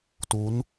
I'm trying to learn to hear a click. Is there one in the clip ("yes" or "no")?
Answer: no